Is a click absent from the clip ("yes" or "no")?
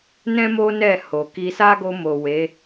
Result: yes